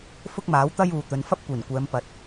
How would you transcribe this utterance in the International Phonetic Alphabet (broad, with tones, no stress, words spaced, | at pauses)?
fʊ˥k̚maː˨˥wt̪ɐ˥j uː˨t̪ɵ˨˧n fɐ˥p̚kʷiː˨˩nkʷɛː˨˧m pɐ˨˥t̚